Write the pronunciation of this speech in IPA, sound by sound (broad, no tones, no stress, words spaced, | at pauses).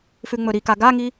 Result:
fʉŋ͡mɵɾika ɡaŋi